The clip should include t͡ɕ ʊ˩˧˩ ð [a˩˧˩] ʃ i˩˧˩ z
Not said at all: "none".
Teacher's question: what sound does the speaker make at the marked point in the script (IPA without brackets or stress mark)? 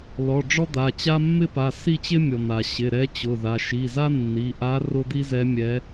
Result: a˩˧˩